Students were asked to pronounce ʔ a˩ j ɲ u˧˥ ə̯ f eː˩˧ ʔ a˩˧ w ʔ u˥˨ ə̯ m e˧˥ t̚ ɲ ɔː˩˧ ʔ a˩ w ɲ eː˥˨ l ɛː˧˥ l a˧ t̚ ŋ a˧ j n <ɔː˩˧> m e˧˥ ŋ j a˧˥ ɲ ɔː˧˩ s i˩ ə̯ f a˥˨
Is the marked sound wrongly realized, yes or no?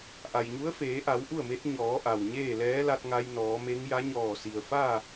no